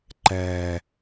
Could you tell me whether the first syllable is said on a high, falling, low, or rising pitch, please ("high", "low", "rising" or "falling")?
low